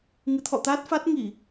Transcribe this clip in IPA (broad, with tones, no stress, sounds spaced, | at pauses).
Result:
ŋ ɨ˨˦ t̪ʰ ɔ̰˧˨ t̪ a˦˥ t̚ f a˦˥ t̚ ŋ i˧˩˨